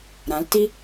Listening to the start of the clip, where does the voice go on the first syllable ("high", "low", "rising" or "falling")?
rising